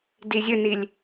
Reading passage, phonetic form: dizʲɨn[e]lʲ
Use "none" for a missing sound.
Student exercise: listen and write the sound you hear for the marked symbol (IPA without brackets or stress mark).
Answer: i